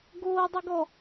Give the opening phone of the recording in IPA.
ɡ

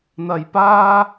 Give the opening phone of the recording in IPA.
n̪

